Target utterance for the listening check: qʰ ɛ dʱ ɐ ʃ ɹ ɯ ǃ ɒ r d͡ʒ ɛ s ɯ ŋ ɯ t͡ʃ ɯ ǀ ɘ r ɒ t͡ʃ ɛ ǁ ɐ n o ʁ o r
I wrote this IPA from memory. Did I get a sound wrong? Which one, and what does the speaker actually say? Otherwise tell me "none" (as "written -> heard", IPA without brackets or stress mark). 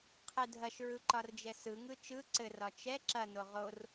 none